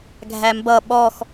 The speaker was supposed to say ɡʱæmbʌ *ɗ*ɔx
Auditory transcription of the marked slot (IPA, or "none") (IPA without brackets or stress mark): ɓ